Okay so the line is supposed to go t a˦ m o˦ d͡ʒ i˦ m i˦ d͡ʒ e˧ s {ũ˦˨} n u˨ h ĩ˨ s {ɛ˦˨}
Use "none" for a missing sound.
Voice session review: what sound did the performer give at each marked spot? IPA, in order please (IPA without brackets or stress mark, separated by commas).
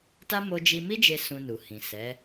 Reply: ũ˧, ɛ˨˦